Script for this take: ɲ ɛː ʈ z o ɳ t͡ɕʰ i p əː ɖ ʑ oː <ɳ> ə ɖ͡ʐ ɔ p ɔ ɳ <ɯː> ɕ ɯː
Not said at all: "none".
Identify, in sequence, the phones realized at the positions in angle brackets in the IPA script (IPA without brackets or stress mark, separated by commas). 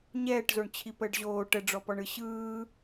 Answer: ʈ, ɯ